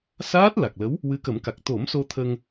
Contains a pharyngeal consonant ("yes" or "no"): no